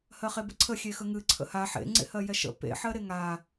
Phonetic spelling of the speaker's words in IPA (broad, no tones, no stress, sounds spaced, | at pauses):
h ɜ χ e b ə ǀʰ ə xʲ e x ə ŋ ɨ ǀʰ ə̰ h a ħ ḛ ŋ͡ǀ ḛ h ɜ j ɛ ʃ ə̰ p ḛ ħ ɜ ɾ e ŋ a